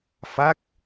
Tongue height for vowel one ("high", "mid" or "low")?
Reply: low